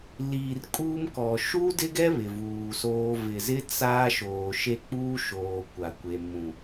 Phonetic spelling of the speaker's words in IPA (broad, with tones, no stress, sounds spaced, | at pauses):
l iː˨ r kʼ uː˦ m k ɔ˨ ʃ uː˦ d ɪ˦ ɡ ɛ˦ β ɪ˨ v uː˨ s oː˦ v ɪ˨ z ɪ˦ t͡s a˦ ʃ oː˨ ʃ e˦ k͡p uː˦ ʃ oː˨ kʷ a˨ kʷ e˨ m ũ˨